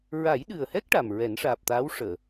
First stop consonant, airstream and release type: implosive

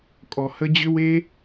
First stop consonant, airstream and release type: ejective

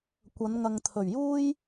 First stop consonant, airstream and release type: plain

